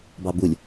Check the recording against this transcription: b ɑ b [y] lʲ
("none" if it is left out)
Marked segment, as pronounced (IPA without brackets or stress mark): u